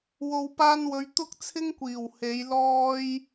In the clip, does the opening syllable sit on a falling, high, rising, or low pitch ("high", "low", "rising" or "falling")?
low